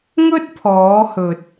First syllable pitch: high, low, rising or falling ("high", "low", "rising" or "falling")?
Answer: high